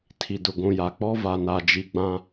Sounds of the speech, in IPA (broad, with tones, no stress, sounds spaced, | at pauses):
tʰ i˨ d ʊ˨ ɡʷ ũ˨ j a˨ k͡p ɔ˦ v a˨ n a˨ d͡ʒ i˨ ɡ͡b ã˦